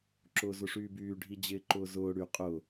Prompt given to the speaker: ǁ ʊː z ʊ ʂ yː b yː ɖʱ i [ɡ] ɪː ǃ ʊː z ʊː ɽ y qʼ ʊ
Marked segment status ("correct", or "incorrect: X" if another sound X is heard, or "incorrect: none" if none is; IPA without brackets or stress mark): incorrect: d͡ʑ